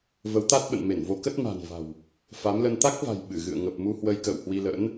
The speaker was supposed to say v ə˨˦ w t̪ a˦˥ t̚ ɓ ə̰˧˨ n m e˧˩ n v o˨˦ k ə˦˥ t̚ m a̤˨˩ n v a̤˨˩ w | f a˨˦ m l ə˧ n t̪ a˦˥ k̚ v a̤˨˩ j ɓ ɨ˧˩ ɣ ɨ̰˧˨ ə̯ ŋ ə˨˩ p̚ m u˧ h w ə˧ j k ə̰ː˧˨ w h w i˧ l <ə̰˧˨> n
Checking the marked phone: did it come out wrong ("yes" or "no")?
yes